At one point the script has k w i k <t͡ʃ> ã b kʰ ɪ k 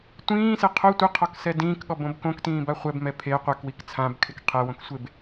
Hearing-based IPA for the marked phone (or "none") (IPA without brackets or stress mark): t͡sʰ